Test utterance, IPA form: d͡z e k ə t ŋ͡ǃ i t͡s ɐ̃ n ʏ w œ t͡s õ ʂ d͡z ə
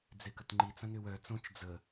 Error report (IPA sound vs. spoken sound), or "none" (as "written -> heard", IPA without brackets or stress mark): ʂ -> t͡ʃ